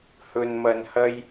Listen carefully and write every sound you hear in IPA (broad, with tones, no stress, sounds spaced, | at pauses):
h ɵ˧ n m ɐ˧ n h ɐ˥ j